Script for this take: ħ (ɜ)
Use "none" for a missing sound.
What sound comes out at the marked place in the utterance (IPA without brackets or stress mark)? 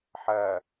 ɜ